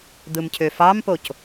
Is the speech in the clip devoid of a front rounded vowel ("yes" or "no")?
no